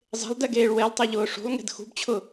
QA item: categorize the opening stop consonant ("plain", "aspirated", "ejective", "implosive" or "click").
plain